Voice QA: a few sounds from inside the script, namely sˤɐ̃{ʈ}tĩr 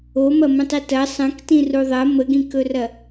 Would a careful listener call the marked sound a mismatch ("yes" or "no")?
yes